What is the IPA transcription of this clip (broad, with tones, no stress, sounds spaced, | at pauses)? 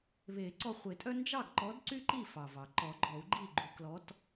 β e˨˩˦ ǀ ɔ˧ χʷ e˨˩˦ tʼ œ˥ n d͡ʒ ɑ˥˨ ɡ ǃ ɔ˧˥ d ǀ y˥ ǃ i˥˨ f ɑ˩ v ɑ˩ ǃ ɔ˨˩˦ ɡ͡ǃ ɔ˨˩˦ u̯ ɡ͡ǃ i˥˨ ɡ͡ǃ u˧ k l ɔ˧˥ t